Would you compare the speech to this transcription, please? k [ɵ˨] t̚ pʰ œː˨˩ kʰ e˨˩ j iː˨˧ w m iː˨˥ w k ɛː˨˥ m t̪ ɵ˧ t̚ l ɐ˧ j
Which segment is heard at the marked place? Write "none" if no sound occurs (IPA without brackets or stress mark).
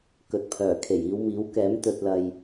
ɵ˨